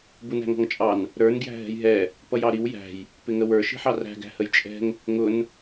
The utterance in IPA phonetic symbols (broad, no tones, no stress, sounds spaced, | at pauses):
b u n æ̤ ŋ ɔ̤ ŋ t͡ʃʼ ɑ n | ɾ ə˞ n ɡ j æ̤ ɦ ɛ̤ j ɦ ɛ | p ʌ j ɑ ɾ i w j æ̤ j | p ɪ ŋ ə w ə˞ ʃ i̤ ħ ɑ r æ̤ ɡ æ̤ h ə j t͡ʃʼ ɛ̤ ŋ | ŋ ʊ n